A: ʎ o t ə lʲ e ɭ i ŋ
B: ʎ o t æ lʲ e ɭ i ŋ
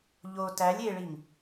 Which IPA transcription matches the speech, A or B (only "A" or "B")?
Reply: B